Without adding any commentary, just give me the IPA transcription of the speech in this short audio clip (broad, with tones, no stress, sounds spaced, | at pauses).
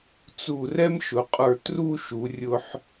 t͡s u˧˩ r ɛ˥ m ʃ ʊ˩˧ qʼ ə˞˧˩ t r u˥˧ ʃ u˩˧ rʲ ʊ˧ ħ